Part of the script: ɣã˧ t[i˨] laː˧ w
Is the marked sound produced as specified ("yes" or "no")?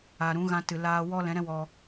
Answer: no